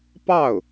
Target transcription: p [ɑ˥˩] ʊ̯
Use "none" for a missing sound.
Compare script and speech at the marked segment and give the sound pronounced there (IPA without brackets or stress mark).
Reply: ɑ˥˩